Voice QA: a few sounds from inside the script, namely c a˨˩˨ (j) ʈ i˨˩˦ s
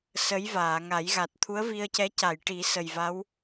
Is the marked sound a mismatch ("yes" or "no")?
no